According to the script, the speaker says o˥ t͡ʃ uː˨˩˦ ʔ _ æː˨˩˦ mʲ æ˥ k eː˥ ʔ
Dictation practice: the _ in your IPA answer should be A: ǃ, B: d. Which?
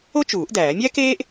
B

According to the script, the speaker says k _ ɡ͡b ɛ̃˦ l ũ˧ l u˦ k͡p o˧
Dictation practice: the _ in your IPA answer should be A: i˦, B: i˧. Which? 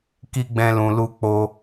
A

